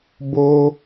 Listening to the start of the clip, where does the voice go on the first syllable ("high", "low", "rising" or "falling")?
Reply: high